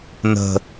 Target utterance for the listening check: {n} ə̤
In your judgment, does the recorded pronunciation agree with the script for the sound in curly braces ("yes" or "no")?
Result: yes